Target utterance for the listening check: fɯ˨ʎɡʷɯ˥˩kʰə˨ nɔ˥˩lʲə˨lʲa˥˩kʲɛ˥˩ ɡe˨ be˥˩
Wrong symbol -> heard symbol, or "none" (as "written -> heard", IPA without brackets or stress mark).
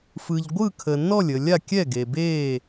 none